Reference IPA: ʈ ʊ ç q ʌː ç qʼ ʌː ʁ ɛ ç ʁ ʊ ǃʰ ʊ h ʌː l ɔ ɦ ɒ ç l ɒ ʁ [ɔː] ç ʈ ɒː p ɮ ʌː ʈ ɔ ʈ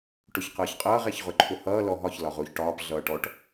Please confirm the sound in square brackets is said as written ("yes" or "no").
no